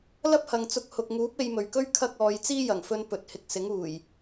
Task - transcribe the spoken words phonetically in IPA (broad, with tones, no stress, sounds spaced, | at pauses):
l ɐ˥ p̚ h ɐ˨ ŋ t͡s ʊ˧ k̚ h ʊ˨ k̚ ŋ uː˨˥ p̚ e˧ j m ɵ˨ ɥ k ɵ˥ ɥ kʰ ɐ˥ k̚ ɔː˨˧ j t͡s iː˥ j ɐ˨˩ ŋ f ɵ˧ n p ɵ˨ t̚ h ɪ˧ k̚ s ɪ˨˥ ŋ uː˨˩ j